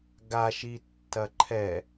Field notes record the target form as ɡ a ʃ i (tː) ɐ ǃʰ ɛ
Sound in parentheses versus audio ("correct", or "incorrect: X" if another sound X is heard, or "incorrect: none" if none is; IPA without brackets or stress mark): correct